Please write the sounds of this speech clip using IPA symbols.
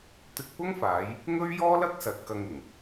t̪ɪ˧k̚pʊ˥ŋfaː˨˧j | ŋɵ˥ɥjɔː˥lɐ˥k̚sɐ˨t̚ kɐ˧ŋ ɪ˨˩ŋ

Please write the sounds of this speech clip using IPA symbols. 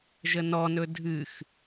ʒənɔnɵ dʱɨx

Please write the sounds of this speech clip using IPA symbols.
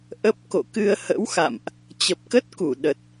ʔə˦˥p̚ ko̰˧˨kɨ˧ə̯hə̰˧˥wxa̰˧˨mʔ | t͡ɕə˨˩p̚kə˦˥t̚ku˧˩ ɗə˨˩t̚

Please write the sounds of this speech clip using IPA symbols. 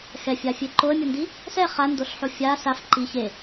xɛfʲafʲe ǃoə̯mʲɯndi | sɛ χandoɬħo fʲa saf ǃi çe

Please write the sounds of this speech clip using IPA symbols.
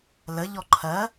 ləʎɔ ǃʰɜ

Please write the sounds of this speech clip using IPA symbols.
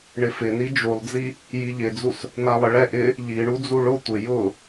ɳɪfɪni d͡ʒulˠd͡zi | jiʎɪd͡zus | nalˠɪɭɛ ʔɪ | ʎiɳud͡zu ɭʊ tʷɪ jʊ

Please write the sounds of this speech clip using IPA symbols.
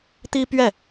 t̪i˥pɥɛ˥˩

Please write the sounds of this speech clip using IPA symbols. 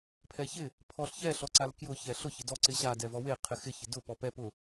pʰɛçɪ | pʰɔɬçɛ ɬɔǀalkjʊ çɛɬʊ çɪdɔ ǀɪɕa dɛvɔwe qʰɪxɪ çɪdʊ pɔpɛ pʊ

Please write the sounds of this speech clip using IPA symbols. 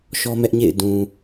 ʃɔ˦mɛ˦ʔɲḛ˦˨ɪ̯ dũ˨

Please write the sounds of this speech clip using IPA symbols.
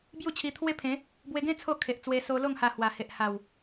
bju˥˧t͡ɕʰi˧t̪ʰwe˦pʰẽ˨˦ | bwe˧ɡẽ˦ t͡sʰo˥˧kʰe˨ʔt͡swe˧ so˧lo˥˧ŋ ha˧hwa˨˩ he˨ʔ ha˨˩w

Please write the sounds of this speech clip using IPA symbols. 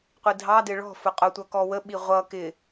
qʷidʱɑdɪ ɭɔ̤fʊ qʼʊtʷʌ kɔwəɓi ʁʷʌ kɪ

